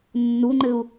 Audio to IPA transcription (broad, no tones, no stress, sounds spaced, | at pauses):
nː u ŋ͡ǃ ɘ u̯